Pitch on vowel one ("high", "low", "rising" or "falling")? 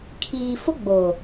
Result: low